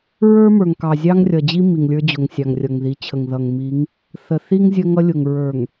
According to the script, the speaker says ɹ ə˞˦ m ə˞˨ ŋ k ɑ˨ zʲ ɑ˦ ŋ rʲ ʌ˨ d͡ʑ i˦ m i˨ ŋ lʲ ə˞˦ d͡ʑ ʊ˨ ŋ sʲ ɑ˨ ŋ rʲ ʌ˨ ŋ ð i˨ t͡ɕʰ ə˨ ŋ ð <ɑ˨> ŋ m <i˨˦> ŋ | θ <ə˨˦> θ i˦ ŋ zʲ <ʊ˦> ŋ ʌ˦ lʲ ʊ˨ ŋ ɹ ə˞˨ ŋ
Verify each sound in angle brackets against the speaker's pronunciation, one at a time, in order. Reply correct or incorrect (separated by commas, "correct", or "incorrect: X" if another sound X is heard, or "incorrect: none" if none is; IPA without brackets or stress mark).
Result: incorrect: ʌ˨, correct, incorrect: ə˨, incorrect: ə˦